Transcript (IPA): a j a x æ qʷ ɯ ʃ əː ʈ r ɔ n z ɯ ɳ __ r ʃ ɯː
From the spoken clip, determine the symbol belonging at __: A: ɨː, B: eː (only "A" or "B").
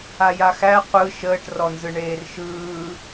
B